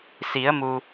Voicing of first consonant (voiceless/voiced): voiceless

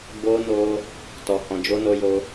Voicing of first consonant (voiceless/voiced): voiced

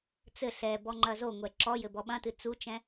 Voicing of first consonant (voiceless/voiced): voiceless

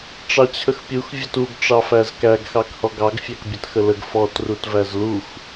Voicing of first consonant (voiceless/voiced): voiceless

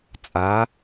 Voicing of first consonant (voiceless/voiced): voiceless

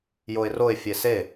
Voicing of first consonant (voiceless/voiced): voiced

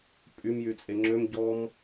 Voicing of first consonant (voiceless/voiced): voiceless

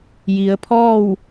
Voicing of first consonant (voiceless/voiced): voiced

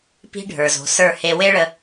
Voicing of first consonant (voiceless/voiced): voiceless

